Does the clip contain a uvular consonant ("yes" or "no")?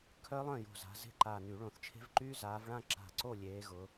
no